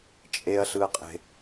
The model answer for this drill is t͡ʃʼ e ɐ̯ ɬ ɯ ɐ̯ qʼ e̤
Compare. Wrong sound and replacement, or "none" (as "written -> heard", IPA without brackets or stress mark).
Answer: none